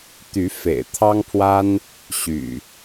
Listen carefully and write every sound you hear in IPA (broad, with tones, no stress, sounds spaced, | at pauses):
t̪ y˨˦ f ḛ˨˩ ɪ̯ t̪ʰ ɑ˦ ŋ pʰ w a˦ n | ɕ y̰˨˩